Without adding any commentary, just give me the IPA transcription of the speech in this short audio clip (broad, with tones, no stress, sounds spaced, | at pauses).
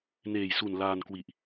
n eː˨˩ j s u˨˩ n l aː˧ n k w i˨˩ ʔ